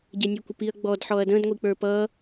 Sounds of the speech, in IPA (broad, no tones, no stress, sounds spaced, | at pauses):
ɟ ɛ nʲ ə˞ kʷ ə p i ɐ̯ ɡ͡b ɔ d ħ ɔ ɐ̯ d ə̃ d ŋʷ i k͡p ə˞ p ʌ